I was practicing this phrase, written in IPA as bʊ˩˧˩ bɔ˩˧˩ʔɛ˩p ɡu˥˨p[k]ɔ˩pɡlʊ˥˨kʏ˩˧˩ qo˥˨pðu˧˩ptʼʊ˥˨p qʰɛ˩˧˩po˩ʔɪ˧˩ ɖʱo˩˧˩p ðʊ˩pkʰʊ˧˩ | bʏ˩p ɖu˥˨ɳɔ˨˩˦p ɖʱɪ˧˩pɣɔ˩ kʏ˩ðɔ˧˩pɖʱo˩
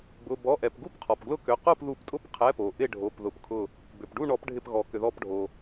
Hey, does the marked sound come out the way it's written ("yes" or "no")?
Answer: no